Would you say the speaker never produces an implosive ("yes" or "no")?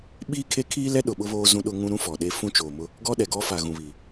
no